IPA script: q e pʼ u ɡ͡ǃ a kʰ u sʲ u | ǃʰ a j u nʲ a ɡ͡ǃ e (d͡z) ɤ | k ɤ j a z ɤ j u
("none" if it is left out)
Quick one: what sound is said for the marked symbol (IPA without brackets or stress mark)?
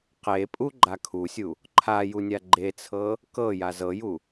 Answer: t͡sʰ